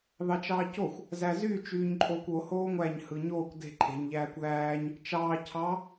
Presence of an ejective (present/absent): present